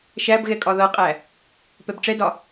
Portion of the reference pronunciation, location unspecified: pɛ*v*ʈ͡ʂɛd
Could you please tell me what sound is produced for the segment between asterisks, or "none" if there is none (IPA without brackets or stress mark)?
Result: b